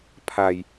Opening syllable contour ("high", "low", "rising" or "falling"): low